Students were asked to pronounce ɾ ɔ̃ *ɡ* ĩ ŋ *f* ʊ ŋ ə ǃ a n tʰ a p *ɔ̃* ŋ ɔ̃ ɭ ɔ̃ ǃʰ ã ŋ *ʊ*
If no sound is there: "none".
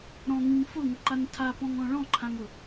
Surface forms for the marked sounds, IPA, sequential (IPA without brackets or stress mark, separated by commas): ŋ, f, ɔ̃, ʊ